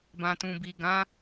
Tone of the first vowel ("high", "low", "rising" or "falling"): low